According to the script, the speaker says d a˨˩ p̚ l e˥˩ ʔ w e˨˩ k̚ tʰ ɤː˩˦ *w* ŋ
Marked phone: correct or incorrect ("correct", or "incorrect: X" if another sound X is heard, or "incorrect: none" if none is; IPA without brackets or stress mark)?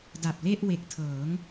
incorrect: none